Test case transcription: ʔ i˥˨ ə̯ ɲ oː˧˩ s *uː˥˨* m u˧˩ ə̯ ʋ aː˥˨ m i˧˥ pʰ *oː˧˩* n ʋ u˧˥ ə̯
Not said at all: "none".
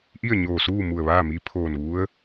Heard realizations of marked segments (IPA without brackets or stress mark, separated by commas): uː˥˨, oː˧˩